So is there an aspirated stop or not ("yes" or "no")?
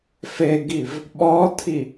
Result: yes